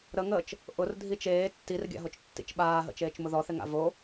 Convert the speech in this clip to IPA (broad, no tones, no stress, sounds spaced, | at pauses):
ɾ ə ŋ əː t͡ʃ | ʔ ʊ r dʱ i t͡ʃ eː tː i r ɡʲ a̰ ɦ o t͡ʃ tː ḭ t͡ʃ ɓ aː ɦ ə̰ t͡ʃ eː t͡ʃ m ʊ ð ɔ θ ɪ ŋ a̰ v o